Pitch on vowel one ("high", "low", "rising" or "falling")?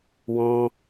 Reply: high